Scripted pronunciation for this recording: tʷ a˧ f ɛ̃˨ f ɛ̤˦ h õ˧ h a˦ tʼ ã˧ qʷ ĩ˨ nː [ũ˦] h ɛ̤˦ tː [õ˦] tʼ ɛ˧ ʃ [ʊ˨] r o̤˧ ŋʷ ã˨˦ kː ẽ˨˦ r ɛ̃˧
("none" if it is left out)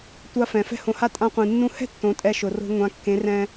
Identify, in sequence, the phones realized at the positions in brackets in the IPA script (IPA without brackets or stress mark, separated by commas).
ũ˧, õ˨˦, ʊ˨